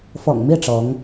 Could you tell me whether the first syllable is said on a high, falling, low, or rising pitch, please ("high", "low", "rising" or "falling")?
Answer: low